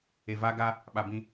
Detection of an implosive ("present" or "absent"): present